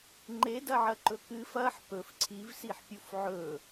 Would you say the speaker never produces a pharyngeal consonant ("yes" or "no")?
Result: no